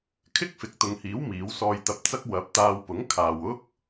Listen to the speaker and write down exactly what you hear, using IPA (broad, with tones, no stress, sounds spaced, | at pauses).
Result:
kʰ ɪ˥ k̚ f ɪ˨ k̚ t̪ ʊ˨ ŋ h iː˨˥ w m iː˨˥ w s ɔː˧ j t̪ ɐ˧ p̚ t͡s ɐ˥ k̚ w ɐ˨˥ p̚ t̪ aː˧ w p ʊ˨˥ ŋ kʰ aː˨ w ʊ˥ k̚